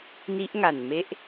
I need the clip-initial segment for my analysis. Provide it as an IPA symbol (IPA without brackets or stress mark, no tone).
n